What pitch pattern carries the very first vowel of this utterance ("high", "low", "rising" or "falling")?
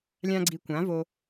high